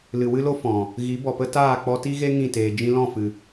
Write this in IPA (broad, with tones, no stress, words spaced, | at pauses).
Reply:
lɨ˨wɨ˦lo˦ fɔ̃˨ | ɣi˨˦bɔ˨pə˦ taː˦˨k͡pɔ˧ti˦ɣe˦ ŋĩ˦˨teː˨ d͡ʒĩ˧lɔ̃˦˨fɨ˨